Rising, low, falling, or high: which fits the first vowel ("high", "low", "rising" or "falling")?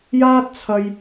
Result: high